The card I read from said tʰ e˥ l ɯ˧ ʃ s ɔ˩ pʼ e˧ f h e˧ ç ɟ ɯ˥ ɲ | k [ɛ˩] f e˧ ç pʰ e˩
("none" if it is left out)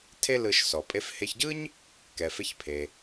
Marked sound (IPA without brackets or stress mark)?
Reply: ɛ˩